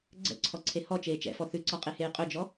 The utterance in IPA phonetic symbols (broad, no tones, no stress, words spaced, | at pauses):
ɡ͡ǀɛ̰ǀʰɔǀʰe hɔt͡ʃeː t͡ʃɛ̰fɔ θʉǀɒqʼeheː qʼɵd͡ʒɔ